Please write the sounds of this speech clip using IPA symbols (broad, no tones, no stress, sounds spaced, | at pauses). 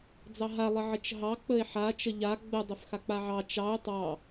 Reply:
d͡z ɑ ɦ a lˠ ə ʕ ə t͡ʃ ɦ ɑ k͡p ə e̯ ħ a t͡ʃ ə ʎ a ɡ͡b ə dˤ ə f x a k͡p a ʕ ɑ t͡ʃ ɑ o̯ tˤ ɑ